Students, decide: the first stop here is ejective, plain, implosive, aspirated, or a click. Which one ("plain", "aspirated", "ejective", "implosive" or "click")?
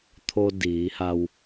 aspirated